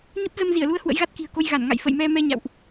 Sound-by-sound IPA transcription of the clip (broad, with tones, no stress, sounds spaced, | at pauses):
ɲ ə˦˥ p̚ z ə˧ m z i˧˩ ə̯ l u˧ ə̯ h w ə̰˧˥ j ɣ a˦˥ t̚ k i̤˨˩ ə̯ k o˧ j ɣ a˧˩ n ŋ a̰˧˨ j f ə̰˧˨ j m ɛ˧ m ɛ˧ ɲ a̰˧˨ w ʔ